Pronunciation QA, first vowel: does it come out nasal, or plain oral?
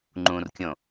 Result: nasal